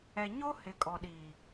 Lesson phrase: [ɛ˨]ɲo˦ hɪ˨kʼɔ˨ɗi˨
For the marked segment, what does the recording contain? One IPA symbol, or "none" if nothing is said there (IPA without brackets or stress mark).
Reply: ɛ˨